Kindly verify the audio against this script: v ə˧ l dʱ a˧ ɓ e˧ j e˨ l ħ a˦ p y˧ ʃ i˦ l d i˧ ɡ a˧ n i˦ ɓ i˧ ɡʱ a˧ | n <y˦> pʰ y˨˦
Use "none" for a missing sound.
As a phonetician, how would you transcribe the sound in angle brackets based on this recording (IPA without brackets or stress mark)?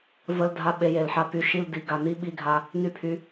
y˧